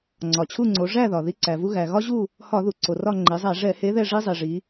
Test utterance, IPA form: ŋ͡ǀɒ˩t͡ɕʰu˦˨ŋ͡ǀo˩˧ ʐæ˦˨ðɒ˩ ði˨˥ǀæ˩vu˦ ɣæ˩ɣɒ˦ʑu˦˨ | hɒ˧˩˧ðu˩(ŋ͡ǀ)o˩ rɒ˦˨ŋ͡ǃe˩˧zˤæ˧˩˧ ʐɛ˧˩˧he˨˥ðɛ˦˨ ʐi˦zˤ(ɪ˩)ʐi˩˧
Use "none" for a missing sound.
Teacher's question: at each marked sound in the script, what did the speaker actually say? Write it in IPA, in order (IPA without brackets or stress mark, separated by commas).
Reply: ǀ, i˩